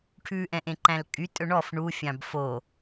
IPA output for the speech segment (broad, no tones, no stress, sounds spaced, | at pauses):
ʈʰ ʉ ʔ ɛ̃ ʔ ẽ ǃ æ̃ l kʼ y tʼ ɵ ɳ ɔ f ɳ u fʲ ɑ̃ b f o